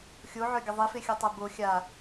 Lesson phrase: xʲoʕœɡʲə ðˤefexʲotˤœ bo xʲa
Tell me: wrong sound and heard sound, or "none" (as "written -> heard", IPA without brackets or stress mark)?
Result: none